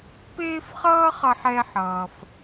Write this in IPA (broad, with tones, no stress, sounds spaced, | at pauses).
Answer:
p eː˥ f χ ʌː˥ χ ʌ˧ ħ ɛ˧ ħ ʌː˩ f